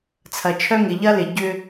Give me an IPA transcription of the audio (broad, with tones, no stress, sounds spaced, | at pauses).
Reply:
t͡sʰ ɐ˨ t͡ʃʰ œ˦ ŋ ɪ˨ ʎ ɐ˦ l ɪ˨ ɟ ʏ˦